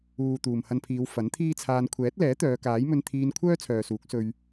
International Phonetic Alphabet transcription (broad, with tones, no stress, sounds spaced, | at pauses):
uː˨ t̪ uː˨ m h ɐ˧ n pʰ iː˨˧ w f ɐ˨˥ n t̪ʰ iː˥ t͡sʰ aː˧ n kʷʰ ɛː˨˥ t̚ l ɛː˨˥ t̪ œː˨˧ k aː˨˥ j m ɵ˧ n t̪ʰ iː˧ n kʷʰ œː˥ t͡sʰ œː˨ s uː˨˥ k̚ s ɵ˧ ɥ